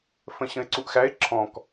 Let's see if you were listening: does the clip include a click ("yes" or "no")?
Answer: yes